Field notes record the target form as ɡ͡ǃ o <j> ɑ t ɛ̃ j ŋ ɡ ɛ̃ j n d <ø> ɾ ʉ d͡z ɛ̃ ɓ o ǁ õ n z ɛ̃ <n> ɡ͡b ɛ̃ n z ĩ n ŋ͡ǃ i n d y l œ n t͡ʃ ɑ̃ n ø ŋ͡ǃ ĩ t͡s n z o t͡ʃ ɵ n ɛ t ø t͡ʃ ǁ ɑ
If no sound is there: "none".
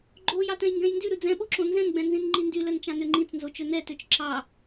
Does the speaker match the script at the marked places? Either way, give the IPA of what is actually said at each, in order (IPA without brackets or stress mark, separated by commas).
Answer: j, y, n